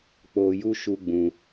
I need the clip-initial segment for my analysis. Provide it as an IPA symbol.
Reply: k͡p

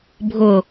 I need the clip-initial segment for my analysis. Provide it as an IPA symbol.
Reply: bʱ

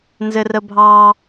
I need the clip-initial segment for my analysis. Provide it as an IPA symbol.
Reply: n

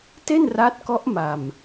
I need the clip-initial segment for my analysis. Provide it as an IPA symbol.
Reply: t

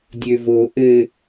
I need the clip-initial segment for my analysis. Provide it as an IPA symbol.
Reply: dʲ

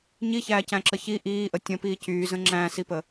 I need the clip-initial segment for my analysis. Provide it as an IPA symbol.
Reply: ɲ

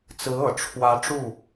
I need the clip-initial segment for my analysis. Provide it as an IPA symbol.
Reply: t͡s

